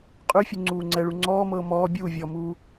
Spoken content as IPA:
qʼ ʉ fʲ ʉ ŋ͡ǀ uː ŋ͡ǀ ɛ ɭ u ŋ͡ǀ ɔː m ɤː m ɔː bʲ uː vʲ ɔ m uː

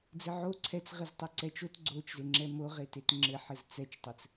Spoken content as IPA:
d͡z ɘ ʕ o ǀʰ ɛ t͡s ʁ ɘ z tˤ e ǀ ɛ t͡ʃ o t ɡ͡ǀ o t͡ʃ z e ŋ͡ǁ ɛ m o ʁ e t e t ŋ͡ǁ ɘ ħ ɘ z t͡s ɛ t͡ʃ tˤ ɘ t͡s

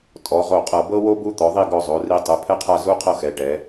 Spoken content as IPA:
tʼ ɔ˩˧ ʁ o˧˩ qʼ ɤ˧˩ b ɤ˥ w o˥ b u˥ t̪ ɔ˩˧ ðˤ i˥˧ ɡ ɔ˧ zˤ o˩˧ r i˧ tˤ ɯ˩˧ pʰ ɛ˥ qʰ a˥˧ z u˥ qʰ ɤ˥˧ x ɛ˩˧ ʈ ɛ˩˧

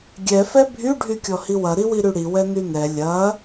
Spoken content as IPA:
ɡʲ ɛ f ɛ bʱ y ɖʱ y kʲ ɔ h i w ɐ ɾ i w i ɾ y ɽ i w ɛ n y n ɛ lʲ ɐ

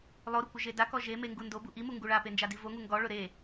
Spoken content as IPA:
lˠ o ɾ ʊ kʷ ɪ ʒ e d a k ɔ ʒ e m e ŋ ɡ u n d o b u ʔ i m u ŋ ɡ u ɭ a p e n d͡ʒ a d i v o ŋ u ŋ ɡ ɔ ɭ ʊ ɾ e

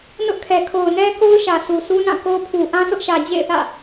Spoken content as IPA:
n ʊ˦ ʔ kʰ ɛ˨ kʰ o˨ ʊ̯ n ɛ˦ k o˦ ʊ̯ ʃ ä˨ sʰ u˨ sʰ u˦ n ã˦˨ k o˦ pʰ u˨ ʔ ã˦ sʰ ʊ˦ ʔ ʃ ä˨ d͡ʑ ḛ˦˨ ɪ̯ θ ä̰˦˨

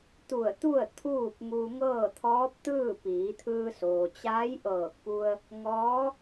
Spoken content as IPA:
t̪ u˧˩ ə̯ t̪ u˥˨ ə̯ t̪ʰ uː˥˨ p̚ ŋ u˧ ŋ ɤː˥˨ t̪ʰ ɔː˧˥ p̚ t̪ ɯː˥˨ p iː˩˧ t̪ʰ ɯː˧ s oː˩ t͡ɕ aː˧˥ j ʔ ɤː˧˩ k̚ p u˧ ə̯ | ŋ ɔː˧˥

